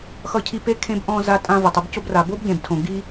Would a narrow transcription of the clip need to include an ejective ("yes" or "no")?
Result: yes